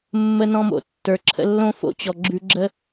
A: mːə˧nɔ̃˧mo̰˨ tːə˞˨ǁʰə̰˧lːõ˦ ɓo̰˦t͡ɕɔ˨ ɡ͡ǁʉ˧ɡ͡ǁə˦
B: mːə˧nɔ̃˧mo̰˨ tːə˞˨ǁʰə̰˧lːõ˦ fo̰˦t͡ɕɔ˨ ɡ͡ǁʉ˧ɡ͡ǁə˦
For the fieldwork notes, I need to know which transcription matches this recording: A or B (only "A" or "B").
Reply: B